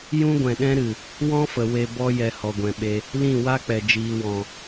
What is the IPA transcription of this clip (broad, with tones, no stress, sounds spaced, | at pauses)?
j ũ˦ ɡʷ ɛ̃˨ ɗ ɛ̃˦ ɾ ɨ˨ | w ɔ̃˦ f ə˨ w e˧ b ɔ˦ j ɛ˧ h ɔ˨ ɡʷ ɛ̃˨ ɓ e˧ | l ĩ˦˨ w a˦ k͡p ɛ˨ d͡ʒ iː˨ w ɔ̃˨